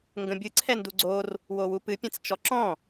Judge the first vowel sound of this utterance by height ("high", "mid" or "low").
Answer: mid